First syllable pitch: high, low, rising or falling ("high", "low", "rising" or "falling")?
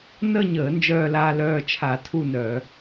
falling